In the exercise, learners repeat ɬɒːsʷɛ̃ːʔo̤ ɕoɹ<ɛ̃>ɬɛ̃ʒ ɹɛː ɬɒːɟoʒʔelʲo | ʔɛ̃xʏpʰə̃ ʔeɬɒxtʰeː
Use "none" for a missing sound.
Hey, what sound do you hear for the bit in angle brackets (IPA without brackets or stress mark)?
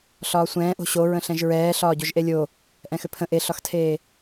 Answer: ə̃